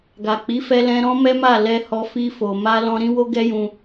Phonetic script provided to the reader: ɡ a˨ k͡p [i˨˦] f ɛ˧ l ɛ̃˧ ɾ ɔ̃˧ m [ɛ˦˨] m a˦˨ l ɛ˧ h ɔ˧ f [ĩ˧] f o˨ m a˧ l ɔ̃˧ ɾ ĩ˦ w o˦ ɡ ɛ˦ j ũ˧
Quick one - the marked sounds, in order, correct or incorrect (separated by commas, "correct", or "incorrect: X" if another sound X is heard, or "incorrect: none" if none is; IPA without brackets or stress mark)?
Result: correct, incorrect: ɛ˦, incorrect: i˧